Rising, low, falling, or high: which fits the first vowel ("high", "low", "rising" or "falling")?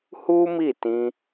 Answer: high